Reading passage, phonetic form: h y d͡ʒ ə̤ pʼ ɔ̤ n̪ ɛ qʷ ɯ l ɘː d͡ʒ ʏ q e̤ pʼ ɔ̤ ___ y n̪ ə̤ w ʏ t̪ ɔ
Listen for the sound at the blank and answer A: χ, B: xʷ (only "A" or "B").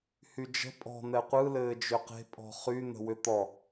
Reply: A